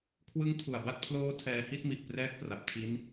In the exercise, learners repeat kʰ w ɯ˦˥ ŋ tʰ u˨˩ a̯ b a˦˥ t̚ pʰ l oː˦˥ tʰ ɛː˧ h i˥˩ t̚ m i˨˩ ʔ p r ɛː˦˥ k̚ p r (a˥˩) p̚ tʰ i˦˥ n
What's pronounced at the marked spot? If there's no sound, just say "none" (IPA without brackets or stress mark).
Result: a˨˩